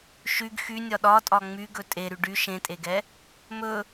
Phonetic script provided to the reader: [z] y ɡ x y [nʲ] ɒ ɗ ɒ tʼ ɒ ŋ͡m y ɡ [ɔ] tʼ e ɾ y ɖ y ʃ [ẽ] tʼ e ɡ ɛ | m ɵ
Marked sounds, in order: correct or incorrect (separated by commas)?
incorrect, correct, incorrect, correct